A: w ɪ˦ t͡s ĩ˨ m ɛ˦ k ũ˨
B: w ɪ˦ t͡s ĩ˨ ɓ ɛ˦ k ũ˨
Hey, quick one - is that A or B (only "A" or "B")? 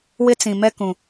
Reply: A